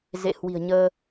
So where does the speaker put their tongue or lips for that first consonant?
tongue tip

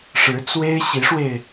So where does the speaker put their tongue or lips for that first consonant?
retroflex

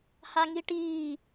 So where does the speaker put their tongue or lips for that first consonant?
throat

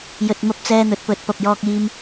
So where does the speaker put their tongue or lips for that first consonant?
palate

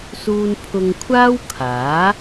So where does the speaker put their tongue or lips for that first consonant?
tongue tip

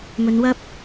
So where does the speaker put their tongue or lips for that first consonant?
lips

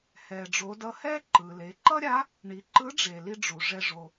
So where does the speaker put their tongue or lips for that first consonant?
throat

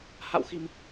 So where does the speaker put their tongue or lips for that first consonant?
throat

